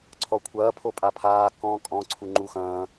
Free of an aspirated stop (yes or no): no